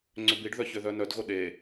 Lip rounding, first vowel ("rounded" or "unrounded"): rounded